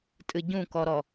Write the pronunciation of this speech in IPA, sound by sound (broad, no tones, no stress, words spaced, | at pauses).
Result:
tʼɨɟũkɔɾɔ